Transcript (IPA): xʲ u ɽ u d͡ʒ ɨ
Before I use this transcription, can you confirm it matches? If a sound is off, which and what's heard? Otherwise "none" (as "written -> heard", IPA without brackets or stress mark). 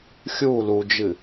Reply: ɽ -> l